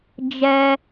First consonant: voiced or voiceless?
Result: voiced